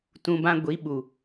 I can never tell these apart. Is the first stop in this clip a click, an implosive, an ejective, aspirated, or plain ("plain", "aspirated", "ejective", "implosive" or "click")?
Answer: plain